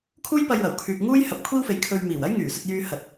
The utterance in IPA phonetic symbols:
kʰuː˥jpɐ˧j wɐ˨˩wkʰyː˨k̚ŋuː˥j hɐ˧p̚kʷʰiː˥wfe˨˧j kʰɵ˧ɥmiː˨˩w ɐ˥jŋyː˨˩sɵ˧t̚jyː˧ hɐ˨t̚

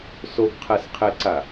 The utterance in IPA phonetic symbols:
soɡqʰɛsqʰeǀa

